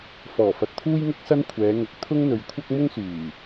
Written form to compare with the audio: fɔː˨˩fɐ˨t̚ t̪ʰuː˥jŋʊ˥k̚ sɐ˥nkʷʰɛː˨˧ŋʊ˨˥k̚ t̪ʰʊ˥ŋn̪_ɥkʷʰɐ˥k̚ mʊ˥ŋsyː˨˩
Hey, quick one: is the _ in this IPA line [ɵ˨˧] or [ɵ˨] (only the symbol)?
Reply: ɵ˨˧